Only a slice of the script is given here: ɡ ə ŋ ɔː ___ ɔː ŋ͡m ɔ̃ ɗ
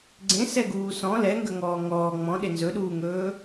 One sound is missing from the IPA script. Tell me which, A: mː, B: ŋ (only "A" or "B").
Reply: B